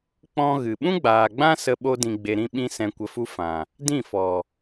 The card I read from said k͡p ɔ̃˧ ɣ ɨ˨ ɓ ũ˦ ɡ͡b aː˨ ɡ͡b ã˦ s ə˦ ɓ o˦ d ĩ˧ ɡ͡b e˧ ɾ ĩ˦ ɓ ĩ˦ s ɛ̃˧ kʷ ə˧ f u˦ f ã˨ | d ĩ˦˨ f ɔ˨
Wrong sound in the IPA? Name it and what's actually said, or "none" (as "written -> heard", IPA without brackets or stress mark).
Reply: none